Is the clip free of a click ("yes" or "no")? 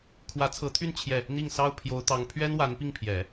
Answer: yes